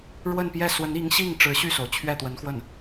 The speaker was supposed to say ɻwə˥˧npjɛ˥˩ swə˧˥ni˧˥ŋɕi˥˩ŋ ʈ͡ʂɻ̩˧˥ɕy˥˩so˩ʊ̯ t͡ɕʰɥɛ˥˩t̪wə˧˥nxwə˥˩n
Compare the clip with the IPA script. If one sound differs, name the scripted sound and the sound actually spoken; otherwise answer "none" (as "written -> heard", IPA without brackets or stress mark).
none